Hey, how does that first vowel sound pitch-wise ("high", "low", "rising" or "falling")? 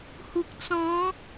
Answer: low